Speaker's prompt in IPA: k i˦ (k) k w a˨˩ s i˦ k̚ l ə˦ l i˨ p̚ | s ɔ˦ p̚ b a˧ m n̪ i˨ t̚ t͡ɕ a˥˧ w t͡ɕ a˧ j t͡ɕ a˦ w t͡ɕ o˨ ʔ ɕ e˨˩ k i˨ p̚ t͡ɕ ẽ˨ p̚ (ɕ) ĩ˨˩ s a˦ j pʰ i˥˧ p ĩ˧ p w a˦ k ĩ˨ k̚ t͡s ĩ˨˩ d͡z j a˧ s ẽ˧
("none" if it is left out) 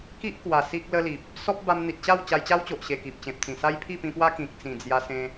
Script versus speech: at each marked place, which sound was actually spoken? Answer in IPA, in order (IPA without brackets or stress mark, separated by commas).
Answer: ʔ, t͡s